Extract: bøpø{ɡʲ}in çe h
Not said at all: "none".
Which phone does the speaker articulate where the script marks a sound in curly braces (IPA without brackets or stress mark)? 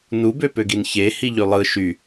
ɡ